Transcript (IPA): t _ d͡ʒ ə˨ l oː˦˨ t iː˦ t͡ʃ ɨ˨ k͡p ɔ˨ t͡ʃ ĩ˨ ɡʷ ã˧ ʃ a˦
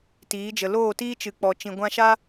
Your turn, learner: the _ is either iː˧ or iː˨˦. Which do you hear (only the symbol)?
iː˨˦